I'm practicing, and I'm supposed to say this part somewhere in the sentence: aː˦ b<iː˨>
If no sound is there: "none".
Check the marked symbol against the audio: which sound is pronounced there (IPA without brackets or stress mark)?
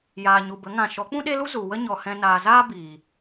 iː˨